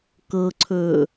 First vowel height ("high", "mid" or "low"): mid